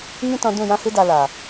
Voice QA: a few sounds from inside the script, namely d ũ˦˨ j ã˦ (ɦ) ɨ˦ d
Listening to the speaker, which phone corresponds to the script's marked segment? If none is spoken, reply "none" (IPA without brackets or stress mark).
h